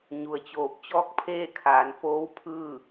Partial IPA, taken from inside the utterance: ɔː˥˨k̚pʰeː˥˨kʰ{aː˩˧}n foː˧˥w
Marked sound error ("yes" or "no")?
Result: no